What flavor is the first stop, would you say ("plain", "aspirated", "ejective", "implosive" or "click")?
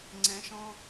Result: click